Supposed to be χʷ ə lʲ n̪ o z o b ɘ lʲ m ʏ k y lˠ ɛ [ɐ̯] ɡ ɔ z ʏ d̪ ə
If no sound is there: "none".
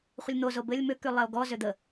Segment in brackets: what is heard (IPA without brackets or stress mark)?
o̯